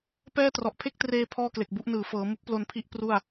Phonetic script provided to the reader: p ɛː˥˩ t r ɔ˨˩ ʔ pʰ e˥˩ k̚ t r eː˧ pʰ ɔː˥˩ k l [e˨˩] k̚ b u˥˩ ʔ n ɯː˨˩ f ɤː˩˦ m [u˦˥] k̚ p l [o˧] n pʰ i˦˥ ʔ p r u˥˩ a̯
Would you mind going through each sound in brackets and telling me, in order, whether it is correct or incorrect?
correct, correct, correct

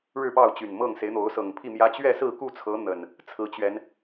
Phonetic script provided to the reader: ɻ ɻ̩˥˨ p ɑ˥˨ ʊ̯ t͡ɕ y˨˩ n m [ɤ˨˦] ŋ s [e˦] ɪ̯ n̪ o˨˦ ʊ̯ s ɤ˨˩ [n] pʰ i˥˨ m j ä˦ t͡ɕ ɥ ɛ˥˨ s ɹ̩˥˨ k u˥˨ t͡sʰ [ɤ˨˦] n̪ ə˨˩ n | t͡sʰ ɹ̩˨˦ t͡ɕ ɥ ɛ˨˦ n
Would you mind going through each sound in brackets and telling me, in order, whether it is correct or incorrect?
incorrect, incorrect, incorrect, correct

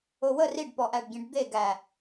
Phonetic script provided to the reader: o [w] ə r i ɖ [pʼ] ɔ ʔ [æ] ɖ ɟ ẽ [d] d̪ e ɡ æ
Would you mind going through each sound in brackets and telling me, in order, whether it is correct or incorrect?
correct, incorrect, correct, incorrect

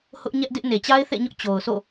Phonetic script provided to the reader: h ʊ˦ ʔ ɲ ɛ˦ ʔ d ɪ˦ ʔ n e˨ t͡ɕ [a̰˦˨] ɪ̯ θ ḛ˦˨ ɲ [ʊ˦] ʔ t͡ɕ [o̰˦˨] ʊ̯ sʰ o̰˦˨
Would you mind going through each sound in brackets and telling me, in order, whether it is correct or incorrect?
incorrect, correct, incorrect

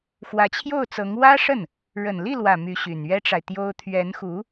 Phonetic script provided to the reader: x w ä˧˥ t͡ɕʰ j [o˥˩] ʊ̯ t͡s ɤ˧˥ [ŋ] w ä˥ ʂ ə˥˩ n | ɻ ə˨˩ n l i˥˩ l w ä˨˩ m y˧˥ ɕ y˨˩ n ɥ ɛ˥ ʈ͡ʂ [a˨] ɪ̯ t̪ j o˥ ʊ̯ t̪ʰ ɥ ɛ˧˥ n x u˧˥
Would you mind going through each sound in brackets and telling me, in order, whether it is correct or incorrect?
correct, correct, correct

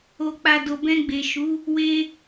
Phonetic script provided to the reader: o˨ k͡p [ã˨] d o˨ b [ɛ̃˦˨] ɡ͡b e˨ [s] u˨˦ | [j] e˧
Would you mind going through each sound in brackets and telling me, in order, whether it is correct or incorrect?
incorrect, incorrect, incorrect, incorrect

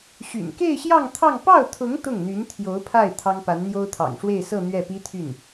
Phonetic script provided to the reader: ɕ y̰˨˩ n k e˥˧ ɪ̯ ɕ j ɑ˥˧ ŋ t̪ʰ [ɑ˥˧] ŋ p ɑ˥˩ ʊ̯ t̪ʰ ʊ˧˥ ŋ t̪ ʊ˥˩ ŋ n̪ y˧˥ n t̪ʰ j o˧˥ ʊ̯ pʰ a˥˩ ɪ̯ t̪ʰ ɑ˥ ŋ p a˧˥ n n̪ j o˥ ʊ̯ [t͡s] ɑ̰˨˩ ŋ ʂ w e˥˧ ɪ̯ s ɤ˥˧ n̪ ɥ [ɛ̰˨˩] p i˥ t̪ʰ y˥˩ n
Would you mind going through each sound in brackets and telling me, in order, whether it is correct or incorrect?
correct, incorrect, incorrect

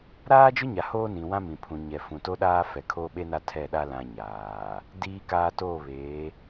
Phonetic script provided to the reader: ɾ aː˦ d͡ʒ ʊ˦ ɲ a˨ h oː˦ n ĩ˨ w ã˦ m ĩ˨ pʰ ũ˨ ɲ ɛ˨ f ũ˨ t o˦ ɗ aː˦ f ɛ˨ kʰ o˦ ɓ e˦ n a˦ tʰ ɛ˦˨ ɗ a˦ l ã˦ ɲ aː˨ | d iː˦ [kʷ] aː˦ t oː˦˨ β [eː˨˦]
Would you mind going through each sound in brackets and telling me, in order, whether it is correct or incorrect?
incorrect, correct

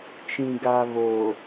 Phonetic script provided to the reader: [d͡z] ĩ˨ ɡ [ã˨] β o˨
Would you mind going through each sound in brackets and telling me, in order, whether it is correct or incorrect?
incorrect, incorrect

